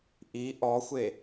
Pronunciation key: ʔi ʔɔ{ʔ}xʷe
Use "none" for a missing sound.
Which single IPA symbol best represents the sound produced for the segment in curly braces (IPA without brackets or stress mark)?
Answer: none